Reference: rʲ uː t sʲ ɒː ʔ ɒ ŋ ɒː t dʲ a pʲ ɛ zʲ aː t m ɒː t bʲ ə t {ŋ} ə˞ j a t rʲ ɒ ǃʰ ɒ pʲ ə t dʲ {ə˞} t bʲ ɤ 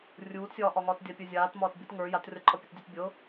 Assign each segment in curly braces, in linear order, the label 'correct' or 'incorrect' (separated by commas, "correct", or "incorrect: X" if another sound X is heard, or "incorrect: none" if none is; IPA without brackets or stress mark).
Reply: correct, incorrect: ɤ